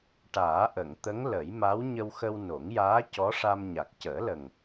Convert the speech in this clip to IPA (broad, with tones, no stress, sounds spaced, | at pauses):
ʈ aː˨˩˦ ʔ ə˨˩˨ ŋ t̪ ə˧˥ ŋ l ə˨˩˦ j m a˧˥ w ɲ ə˧ w x ə˧ w n o˨˩˦ ŋ j aː˧˥ c ɔ˧˥ ʂ a˧ m ɲ a˨˩ k̚ c əː˨˩˦ l ə˨˩ ŋ